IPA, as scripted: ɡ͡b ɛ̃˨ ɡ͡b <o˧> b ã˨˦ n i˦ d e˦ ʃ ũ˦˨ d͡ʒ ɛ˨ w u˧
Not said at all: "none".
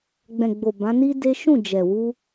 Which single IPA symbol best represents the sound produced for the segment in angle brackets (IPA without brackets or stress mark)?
o˨